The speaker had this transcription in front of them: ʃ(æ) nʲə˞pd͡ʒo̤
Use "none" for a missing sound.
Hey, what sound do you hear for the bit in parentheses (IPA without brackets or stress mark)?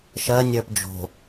ɜ